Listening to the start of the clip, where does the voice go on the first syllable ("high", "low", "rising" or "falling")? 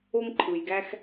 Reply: high